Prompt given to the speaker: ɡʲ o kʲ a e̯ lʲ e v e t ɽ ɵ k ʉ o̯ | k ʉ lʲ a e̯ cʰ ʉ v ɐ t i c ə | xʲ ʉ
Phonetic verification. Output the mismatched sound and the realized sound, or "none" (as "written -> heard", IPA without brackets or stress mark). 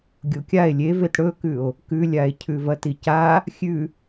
ə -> a